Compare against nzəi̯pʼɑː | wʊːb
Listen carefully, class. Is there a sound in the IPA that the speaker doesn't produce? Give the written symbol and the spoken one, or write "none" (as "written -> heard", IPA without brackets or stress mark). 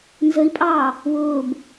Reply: none